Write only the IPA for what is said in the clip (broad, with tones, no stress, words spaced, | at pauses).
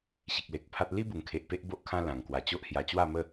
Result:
ɕi˨k̚le˨k̚pʰa˦t̚ li˦bu˨˩ŋ kʰe˨ʔpe˦ʔ bo˦ʔkʰã˦lã˨˩ŋ kwa˨˩t͡ɕo˦ʔhja˧ t͡ɕwa˥˧mə˥˧